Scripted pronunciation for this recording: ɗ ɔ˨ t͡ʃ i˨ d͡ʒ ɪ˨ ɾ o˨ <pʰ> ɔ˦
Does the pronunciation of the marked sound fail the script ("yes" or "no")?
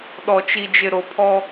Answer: no